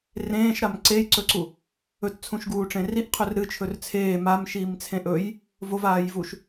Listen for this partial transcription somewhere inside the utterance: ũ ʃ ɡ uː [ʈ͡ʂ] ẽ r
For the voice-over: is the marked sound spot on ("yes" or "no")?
yes